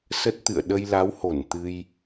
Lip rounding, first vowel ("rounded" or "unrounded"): unrounded